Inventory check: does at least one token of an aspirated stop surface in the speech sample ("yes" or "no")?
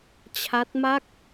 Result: yes